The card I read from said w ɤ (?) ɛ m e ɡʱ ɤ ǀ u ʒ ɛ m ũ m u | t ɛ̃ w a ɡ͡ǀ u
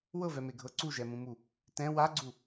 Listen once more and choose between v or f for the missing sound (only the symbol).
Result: v